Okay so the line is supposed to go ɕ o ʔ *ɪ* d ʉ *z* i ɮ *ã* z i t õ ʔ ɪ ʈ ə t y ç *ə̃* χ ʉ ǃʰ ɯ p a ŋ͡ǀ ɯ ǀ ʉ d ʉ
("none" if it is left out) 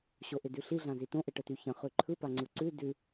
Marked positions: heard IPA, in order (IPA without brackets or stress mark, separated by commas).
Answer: ɪ, ɬ, ã, ə̃